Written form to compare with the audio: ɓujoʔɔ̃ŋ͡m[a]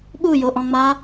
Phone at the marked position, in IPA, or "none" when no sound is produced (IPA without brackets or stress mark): a